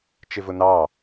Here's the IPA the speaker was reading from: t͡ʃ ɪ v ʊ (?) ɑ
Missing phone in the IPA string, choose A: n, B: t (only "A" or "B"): A